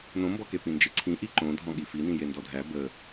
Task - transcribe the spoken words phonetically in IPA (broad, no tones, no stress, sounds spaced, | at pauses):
n õ m b ɔ k e p ĩ n d͡ʒ e ǀʰ ĩ ʔ i ǃ õ dʱ ɔ̃ ɠ i f i n ĩ j e n d ɔ dʱ æ b ə